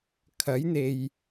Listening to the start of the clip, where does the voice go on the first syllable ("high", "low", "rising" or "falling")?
rising